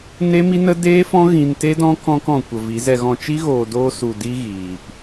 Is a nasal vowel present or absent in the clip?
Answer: present